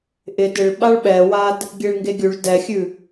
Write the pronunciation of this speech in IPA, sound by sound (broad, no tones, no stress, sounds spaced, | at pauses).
ʔ ɪ d ɪ ɭ ɓ a ɭ ɓ ɛ w a d | ɡʲ e ɭ ŋ ɡ e ɡʲ ʉ ɭ d ɛ xʲ ʉ